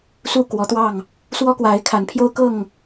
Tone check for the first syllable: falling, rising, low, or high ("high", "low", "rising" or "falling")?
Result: falling